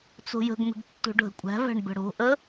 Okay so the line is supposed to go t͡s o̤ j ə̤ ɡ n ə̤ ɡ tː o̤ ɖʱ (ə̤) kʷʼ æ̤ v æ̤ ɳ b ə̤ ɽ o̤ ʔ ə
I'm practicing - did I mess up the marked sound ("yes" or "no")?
no